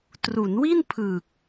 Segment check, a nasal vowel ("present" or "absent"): absent